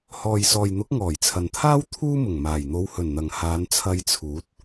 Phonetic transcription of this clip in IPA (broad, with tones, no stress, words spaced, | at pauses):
hɔː˨jsɔː˨jn̪ʊ˨˥k̚ ŋɔː˨˩jt͡sʰɐ˨nt̪ʰaː˥w t̪ʰuː˥mʊ˨˩ŋmaː˨˩j n̪o˨˧whɵ˨˩n n̪ɐ˨ŋhaː˨˧n t͡sʰɐ˧jt͡sʰuː˨˥t̚